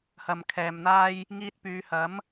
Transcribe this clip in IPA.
h ɐ˨ m kʰ ɛː˨ m n̪ aː˥ j | ŋ iː˧ t̚ p yː˨˧ h ɐ˨˥ m

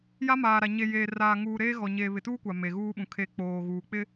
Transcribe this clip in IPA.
j a˦ m aː˨ ɾ a˨ ɲ e˨ j eː˨ r aː˨ ŋ uː˨ ɾ eː˦ ɣ ɔ˨ ɲ eː˨ β ɪ˨ t uː˦ kʷ a˨ m e˨ ɣ uː˦ ɓ ũ˨ kʰ e˨ k͡p oː˨ ɣ uː˨ k͡p ɪ˦

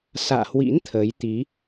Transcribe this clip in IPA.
s a̰ː˧˨ h w ḭ˧˥ n t̪ʰ əː˨˦ j t̪ i˨˦

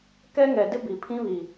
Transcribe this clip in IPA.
k ɛ˦ ŋ ɛ˨ d ɪ˦ b i˨ pʰ ĩ˦ β i˨

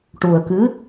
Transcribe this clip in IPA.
ʈ u˨˩ ə̯ k ɨ˧˥

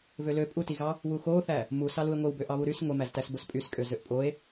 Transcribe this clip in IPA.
v ø l ø pʼ u t i ɣ ɑ | w u x o θ æ | m u s ɑ l u e̯ ŋʷ e w b ø ʔ ɑ β u ɾ y s ŋʷ e m æ z t æ s b o s pʼ y s kʼ ø z ø ʔ pʼ o e̯

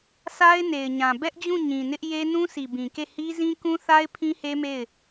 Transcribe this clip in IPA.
sʰ a˦ ɪ̯ n e˨ ɪ̯ ɲ ã˨ b ɛ˦ ʔ d͡ʑ ũ˦˨ ɲ ĩ˨ n ɪ˦ ʔ j e˦ n ũ˦ s i˨ b ĩ˨ k e˦˨ h i˦ z ĩ˦ k ũ˦ θ a˦ ɪ̯ pʰ ĩ˦ h e˦ m e˦˨ ɪ̯

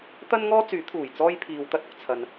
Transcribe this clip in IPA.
t̪ ɐ˥ n ŋ ɔː˥ t͡s yː˨˥ t̪ʰ uː˨˩ j t͡s ɔː˥ j pʰ iː˨ w t̪ ɐ˥ t̚ ʊ˨ k̚ t͡sʰ ɐ˨ n

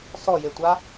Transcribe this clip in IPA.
s ɔ j e tʷ a

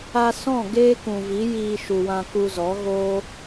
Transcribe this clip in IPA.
a˧ s ɔ̃˦˨ ɡ eː˦ k ũ˨ v i˨˦ j iː˧ ʃ u˨ w ã˧ k u˧ z ɔ˨˦ ɣ oː˦

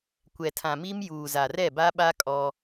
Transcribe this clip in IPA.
kʷ ɛ˨ tʰ ã˨ m i˦ m j uː˨ z a˨ r ɛ˦˨ b a˦ ɓ a˦ kʼ ɔ˦

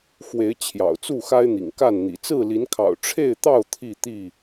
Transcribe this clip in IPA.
x w e˨˦ ɪ̯ t͡ɕʰ j ɑ̰˨˩ ʊ̯ t͡s u˥˨ x a˦ ɪ̯ n̪ ḭ˨˩ ŋ k a˥˨ n n̪ ḭ˨˩ t͡s ɹ̩˥˨ l i˨˦ n kʰ ɑ̰˨˩ ʊ̯ ʈ͡ʂʰ e˥˨ ɪ̯ t̪ ɑ˥˨ ʊ̯ t̪ʰ i˥˨ t̪ i˥˨

